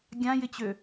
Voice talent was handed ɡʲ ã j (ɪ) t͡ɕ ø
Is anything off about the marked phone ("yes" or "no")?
no